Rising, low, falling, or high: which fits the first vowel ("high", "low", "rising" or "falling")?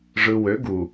low